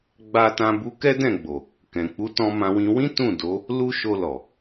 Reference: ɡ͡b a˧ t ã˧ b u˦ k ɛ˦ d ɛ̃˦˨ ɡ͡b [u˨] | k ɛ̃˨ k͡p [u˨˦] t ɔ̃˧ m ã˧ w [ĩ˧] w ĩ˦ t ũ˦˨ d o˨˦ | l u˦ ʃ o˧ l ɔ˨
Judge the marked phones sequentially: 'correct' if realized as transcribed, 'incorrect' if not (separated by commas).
incorrect, correct, correct